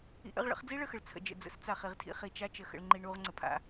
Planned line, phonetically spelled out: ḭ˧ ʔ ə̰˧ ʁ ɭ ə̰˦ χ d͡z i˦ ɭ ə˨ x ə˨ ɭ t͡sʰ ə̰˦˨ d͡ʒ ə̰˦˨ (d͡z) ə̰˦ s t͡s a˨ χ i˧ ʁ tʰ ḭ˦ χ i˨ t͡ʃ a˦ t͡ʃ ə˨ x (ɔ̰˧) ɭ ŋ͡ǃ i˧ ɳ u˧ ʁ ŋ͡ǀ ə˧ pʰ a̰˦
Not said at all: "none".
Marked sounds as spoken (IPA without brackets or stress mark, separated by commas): d͡z, ə̰˧